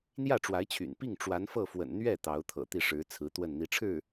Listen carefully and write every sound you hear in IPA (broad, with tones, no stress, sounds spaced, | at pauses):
n̪ j ä˥˩ ʈ͡ʂ w a˧˥ ɪ̯ t͡ɕʰ y̰˨˩ n p i˥˩ ŋ ʈ͡ʂ w a˧˥ n f ɤ˥˩ f w ə̰˨˩ n n̪ ɥ ɛ˥˩ t̪ ɑ˧˥ ʊ̯ t̪ʰ ɤ̰˨˩ t̪ i˥˩ ʂ ɻ̩˧˥ t͡sʰ ɹ̩˧˥ t̪ w ə˥˩ n n̪ i˧˥ ʈ͡ʂʰ ɻ̩˥˩